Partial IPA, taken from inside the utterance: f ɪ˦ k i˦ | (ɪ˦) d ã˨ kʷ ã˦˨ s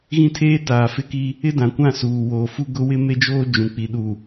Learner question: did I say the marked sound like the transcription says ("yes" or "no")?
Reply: yes